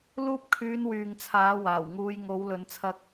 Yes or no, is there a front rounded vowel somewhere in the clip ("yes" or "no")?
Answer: yes